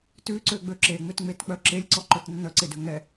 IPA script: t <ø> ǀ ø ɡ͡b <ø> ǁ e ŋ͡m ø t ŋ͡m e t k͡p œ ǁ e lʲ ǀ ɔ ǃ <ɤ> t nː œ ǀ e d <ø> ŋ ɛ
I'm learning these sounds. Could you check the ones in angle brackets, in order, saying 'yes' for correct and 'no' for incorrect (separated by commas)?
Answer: no, yes, no, yes